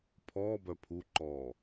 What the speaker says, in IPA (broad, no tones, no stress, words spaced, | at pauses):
pʰɔːbœ pʰuǃɔː